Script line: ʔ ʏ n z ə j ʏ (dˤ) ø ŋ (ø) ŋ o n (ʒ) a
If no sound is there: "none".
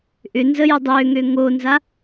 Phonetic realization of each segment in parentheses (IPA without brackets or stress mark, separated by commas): dˤ, ø, z